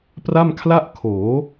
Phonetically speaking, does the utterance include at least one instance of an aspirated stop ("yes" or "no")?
yes